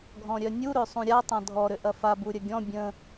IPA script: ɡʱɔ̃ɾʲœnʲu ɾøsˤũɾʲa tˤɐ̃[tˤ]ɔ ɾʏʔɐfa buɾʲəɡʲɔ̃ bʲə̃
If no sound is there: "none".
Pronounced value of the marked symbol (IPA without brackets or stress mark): dʱ